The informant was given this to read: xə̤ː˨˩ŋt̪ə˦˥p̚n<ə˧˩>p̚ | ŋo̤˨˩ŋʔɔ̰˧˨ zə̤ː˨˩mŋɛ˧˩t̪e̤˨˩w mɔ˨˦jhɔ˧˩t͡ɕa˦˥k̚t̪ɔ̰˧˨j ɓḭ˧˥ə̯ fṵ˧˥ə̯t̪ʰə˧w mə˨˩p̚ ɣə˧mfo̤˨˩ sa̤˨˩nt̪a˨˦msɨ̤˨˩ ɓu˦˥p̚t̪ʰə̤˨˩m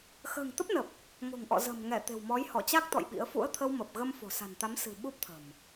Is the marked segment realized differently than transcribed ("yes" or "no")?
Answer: yes